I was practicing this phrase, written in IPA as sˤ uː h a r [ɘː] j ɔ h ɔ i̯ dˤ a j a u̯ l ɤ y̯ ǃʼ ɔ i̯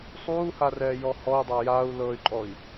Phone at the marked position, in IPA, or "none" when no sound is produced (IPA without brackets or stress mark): ɛː